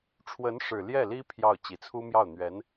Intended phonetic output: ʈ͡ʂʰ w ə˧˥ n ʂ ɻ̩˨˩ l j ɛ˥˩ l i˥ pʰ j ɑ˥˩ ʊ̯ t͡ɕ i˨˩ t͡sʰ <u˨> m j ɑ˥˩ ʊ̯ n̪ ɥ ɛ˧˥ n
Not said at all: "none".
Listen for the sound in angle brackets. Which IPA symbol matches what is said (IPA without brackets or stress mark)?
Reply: u˥